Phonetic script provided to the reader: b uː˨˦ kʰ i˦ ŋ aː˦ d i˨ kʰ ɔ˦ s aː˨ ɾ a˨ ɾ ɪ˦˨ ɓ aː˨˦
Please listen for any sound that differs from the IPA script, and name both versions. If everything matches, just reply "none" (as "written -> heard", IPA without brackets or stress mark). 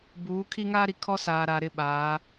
d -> ɾ